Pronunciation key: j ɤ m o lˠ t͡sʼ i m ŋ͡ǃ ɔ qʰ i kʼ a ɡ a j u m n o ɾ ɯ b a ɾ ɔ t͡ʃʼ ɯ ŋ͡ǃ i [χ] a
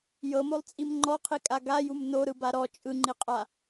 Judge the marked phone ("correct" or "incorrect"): incorrect